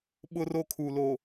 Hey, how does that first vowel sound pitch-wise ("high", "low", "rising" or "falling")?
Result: high